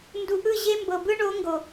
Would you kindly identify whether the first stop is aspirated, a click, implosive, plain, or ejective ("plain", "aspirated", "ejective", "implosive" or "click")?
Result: plain